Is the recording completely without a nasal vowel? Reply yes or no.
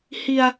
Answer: yes